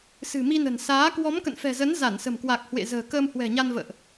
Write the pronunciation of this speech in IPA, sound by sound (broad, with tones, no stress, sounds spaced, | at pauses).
s ɨ̤˨˩ m i˧ n ə̤˨˩ n s aː˨˦ k w ɔ˨˦ m k ə̰˧˨ n f ɛ̤˨˩ z ə˨˦ n z a˧˩ n s ə̤˨˩ m k w a˨˩ k̚ h w ḛ˧˨ z ə̤ː˨˩ k əː˧ m h w ɛ̤˨˩ ɲ a˧ n v ə̰ː˧˨ ʔ